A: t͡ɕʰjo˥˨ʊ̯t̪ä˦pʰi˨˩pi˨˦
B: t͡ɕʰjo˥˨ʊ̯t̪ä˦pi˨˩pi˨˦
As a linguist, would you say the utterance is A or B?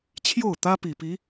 B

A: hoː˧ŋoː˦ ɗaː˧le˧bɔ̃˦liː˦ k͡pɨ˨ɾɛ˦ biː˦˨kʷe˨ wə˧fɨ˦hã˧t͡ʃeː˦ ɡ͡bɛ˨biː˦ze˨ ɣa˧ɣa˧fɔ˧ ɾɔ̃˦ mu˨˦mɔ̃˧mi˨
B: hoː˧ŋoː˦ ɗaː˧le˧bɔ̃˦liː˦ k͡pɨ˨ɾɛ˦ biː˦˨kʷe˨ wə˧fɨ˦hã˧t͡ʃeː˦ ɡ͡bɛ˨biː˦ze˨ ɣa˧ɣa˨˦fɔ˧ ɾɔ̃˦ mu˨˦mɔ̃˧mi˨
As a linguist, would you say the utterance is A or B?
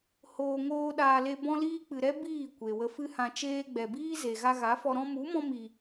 B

